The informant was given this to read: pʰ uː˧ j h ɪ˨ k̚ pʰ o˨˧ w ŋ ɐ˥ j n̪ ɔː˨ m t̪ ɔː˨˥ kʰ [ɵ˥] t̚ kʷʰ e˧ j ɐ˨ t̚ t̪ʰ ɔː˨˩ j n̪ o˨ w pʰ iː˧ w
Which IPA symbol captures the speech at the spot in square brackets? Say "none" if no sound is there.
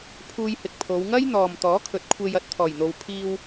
ɵ˨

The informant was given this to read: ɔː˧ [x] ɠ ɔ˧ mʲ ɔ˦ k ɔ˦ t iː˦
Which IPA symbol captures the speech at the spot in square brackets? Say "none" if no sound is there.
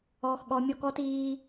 x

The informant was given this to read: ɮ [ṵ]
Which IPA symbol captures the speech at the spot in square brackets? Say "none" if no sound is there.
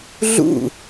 ṵ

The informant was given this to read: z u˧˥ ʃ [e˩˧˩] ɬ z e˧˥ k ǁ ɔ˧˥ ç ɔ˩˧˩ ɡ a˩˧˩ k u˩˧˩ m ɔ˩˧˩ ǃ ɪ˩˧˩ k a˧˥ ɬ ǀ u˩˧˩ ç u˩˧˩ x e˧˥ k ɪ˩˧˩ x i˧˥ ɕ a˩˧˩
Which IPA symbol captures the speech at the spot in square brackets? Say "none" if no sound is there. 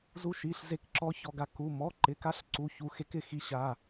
i˩˧˩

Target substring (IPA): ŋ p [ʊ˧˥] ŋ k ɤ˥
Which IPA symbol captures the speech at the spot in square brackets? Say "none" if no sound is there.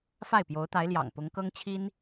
ʊ˧˥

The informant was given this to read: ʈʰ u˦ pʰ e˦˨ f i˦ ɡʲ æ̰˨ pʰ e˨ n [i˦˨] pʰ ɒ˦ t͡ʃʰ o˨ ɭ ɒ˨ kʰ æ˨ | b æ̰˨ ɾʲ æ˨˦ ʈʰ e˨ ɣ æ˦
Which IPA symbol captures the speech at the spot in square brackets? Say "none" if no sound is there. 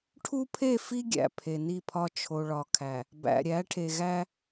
i˦˨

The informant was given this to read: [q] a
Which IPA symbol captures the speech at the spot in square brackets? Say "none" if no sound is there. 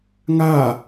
ŋ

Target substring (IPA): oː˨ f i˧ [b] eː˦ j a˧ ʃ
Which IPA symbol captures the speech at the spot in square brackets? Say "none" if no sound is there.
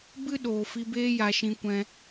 b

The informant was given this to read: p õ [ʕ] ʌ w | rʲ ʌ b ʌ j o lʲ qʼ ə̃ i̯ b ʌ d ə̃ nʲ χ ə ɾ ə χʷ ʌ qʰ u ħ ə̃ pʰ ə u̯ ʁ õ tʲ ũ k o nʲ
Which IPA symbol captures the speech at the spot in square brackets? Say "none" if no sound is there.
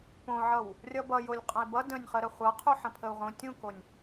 ʕ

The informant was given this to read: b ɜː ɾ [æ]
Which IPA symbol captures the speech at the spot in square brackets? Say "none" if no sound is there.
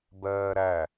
æ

